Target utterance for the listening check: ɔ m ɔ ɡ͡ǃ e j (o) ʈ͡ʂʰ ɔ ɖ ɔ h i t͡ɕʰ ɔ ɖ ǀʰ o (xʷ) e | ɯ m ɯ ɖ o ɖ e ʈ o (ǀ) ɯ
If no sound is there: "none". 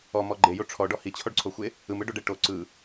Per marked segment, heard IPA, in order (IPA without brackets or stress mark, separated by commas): o, xʷ, ǀ